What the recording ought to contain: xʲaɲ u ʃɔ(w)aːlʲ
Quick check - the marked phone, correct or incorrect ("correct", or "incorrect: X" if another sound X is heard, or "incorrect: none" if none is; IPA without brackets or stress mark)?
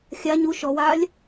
correct